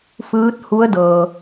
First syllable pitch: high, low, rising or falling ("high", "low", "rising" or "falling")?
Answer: rising